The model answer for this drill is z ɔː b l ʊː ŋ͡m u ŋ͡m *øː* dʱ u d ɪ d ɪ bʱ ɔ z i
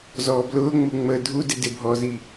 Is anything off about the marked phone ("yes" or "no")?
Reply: yes